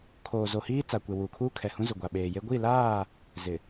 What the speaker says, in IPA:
kʰoː˨zo˨hiː˦ t͡sa˨kʷe˨ wuː˨kʰuː˦ kʰɛ˨hũ˦zʊ˨ ɡʷa˨ɓeː˨je˦ ɡʷi˦˨laː˦˨ | zɪ˨

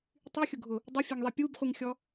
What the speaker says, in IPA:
tˤyxʲʊɡʱʊ | dˤʊfʲɛŋðˤi pʲubχʷiŋxʲɔ

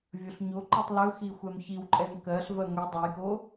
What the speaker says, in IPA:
vʲɵɬɲoǃɛtˤ lɵxi xʷɛmçiwǃʼɛn kɜɬvɜ ŋʷi dˤɜjko

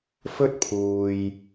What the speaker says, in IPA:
fɵ˥t̚pʰuː˨j

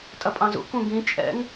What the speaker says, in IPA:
tʼɐpʼɑ̃zṵ kũɡĩ t͡ʃʼɛ̰ŋ

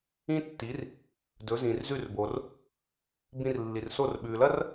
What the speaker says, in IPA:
ĩ˥ tːi˩˥r | dɵ˩˥zĩ˩rzʉ˥˩rbo˩r | bĩ˧rlːi˩rso˥˩r ɓʉ˩lɐ˥r

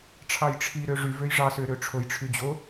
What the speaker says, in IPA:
ʈ͡ʂʰɑjʈ͡ʂʰiɾø ʐy vøjʐɑsø ɾøʈ͡ʂʰojʈ͡ʂʰy d͡ʑo

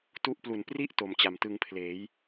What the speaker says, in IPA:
tu˦˥ʔplu˨˩n pri˥˩ʔ to˧m t͡ɕa˨˩mtɯ˧ŋpʰleː˩˦j

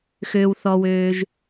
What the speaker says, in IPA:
xøː˩wθɔ˩wøː˩ʒ

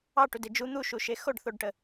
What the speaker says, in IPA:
ɑʈude d͡ʒu n̪uʃuʃe xoɖθoɖʈə

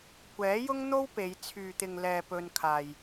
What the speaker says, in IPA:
kʷɛː˨˥jʊ˥ŋn̪o˥wpe˨˧j t͡sʰyː˨t̪ɪ˨ŋlɛː˨ pɵ˧nkʰaː˨j

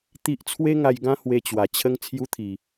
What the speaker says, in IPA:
t̪i˦ʔ t͡sʰwe˦ŋa˧jɡã˦ hwe˧t͡ɕwa˨˩t͡ɕʰə˦ŋ t͡sʰju˦t̪ʰi˨˩

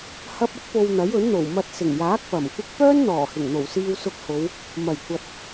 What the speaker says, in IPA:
hɐ˧p̚ɐ˥k̚po˨w n̪ɐ˨˥jɵ˨˥nn̪o˨˩w mɐ˨t̚ sɪ˨˩ŋjaː˨˥k̚ pɐ˨˩m kʷɪ˧k̚ pœː˥nn̪ɔː˨˩hɪ˨˩ŋn̪o˨˩w siː˧wsʊ˧k̚ho˨˧w | mɐ˨˩jkʷɐ˨t̚

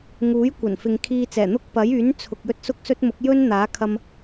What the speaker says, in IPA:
ŋuː˨˥jkʷɐ˨˩nfɪ˨ŋ kʰiː˧t͡sɛː˨˩n̪ʊ˥k̚pɐ˨˥j yː˨˥nt͡sʰʊ˨k̚ jɵ˥t̚sʊ˥k̚sɵ˥t̚mʊ˨˥k̚ jɵ˥n n̪aː˨˥kʰɐ˧m

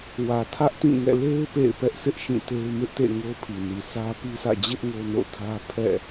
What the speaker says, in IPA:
wä˨tʰä˦ʔtĩ˦˨ŋɛ̰˦˨ le˦ɪ̯ pḛ˦˨ɪ̯pɛ˦ʔsʰɪ˦ʔ ʃĩ˦˨te˦ɪ̯ mɪ˦ʔtḛ˦˨ ŋo˦pʰi˨ni˨ sʰä˦pi˦sʰä̰˦˨ d͡ʑɪ˦ʔ ŋo˦no̰˦˨tʰä˦ pʰɛ̰˦˨

